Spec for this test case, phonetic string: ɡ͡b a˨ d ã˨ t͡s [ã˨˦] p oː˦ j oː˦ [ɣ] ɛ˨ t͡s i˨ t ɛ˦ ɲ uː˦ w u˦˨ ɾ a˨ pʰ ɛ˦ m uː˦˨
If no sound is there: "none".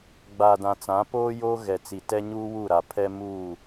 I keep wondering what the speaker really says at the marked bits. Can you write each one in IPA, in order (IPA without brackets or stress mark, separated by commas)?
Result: ã˨˦, ɣ